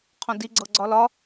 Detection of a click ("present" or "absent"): present